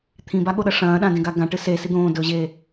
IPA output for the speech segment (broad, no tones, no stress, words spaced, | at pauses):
t̪ʰĩbaɠoɗɐ ʂɐ̃ːɗãdẽɡa ɡãʈɨ sesi d̪õːdɵːʑe